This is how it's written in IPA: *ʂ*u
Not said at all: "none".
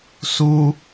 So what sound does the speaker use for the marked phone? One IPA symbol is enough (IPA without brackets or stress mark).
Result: s